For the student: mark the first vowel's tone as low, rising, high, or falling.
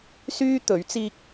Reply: high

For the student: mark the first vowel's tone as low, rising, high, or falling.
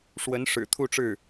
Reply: rising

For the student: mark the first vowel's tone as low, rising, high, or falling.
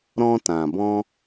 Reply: high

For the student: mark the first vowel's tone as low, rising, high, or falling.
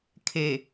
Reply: low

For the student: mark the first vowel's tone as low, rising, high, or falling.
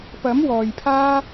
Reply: rising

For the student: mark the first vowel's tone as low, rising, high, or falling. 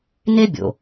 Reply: high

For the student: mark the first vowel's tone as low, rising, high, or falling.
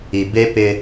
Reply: low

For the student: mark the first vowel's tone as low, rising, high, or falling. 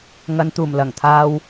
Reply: low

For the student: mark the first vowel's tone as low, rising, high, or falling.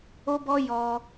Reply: high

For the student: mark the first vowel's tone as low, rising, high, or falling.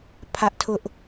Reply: high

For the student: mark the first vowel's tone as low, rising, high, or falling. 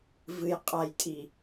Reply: low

